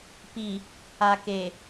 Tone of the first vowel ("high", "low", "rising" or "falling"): low